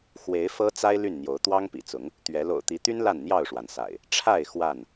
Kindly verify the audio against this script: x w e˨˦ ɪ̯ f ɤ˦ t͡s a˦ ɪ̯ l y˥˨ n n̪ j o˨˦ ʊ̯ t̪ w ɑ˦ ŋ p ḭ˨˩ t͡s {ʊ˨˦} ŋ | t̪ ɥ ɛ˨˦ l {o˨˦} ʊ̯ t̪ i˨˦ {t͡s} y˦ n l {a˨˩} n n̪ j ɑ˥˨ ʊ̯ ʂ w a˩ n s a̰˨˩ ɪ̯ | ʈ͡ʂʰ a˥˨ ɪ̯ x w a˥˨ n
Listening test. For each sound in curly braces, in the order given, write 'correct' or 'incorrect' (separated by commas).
correct, incorrect, incorrect, incorrect